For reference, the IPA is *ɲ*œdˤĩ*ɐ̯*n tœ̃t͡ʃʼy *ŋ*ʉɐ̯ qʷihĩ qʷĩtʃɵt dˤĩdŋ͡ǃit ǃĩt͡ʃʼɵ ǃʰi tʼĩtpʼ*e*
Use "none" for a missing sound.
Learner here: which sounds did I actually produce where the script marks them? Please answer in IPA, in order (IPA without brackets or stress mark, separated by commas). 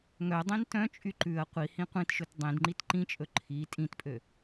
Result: ŋ, none, ǃ, ø